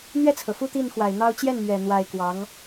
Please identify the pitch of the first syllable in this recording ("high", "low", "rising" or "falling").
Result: falling